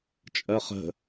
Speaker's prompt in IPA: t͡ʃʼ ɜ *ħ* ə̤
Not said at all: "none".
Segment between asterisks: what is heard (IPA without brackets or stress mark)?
χ